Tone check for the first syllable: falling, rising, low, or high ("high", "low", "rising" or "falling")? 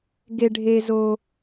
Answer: high